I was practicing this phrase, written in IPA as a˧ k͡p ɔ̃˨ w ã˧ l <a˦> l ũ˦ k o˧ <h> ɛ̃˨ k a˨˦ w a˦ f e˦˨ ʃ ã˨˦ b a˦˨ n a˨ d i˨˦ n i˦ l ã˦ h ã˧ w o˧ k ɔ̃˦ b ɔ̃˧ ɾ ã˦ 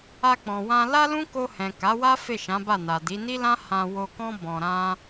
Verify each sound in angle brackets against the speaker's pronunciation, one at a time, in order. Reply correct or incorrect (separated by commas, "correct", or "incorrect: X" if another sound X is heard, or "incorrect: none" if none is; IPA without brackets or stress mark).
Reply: correct, correct